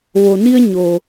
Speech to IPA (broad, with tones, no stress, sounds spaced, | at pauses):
ʋ o˩ n i˧ ə̯ ɲ o˩